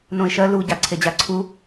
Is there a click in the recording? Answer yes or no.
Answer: yes